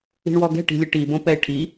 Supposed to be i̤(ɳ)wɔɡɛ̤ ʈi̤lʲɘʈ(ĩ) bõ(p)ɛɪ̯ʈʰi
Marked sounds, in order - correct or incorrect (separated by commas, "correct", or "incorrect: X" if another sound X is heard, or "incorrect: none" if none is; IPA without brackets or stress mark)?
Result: correct, incorrect: i, correct